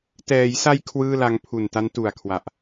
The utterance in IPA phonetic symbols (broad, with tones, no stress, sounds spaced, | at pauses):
t ɛː˩˦ j s a˧ j kʰ w ɯː˥˩ l a˦˥ ŋ pʰ u˨˩ n t a˦˥ n t u˨˩ a̯ kʰ w a˨˩ ʔ